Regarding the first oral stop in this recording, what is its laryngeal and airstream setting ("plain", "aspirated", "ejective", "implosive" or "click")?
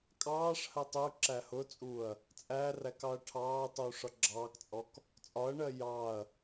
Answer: ejective